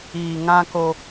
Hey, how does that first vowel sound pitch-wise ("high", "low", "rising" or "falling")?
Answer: low